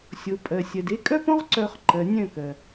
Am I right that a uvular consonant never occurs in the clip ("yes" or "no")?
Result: no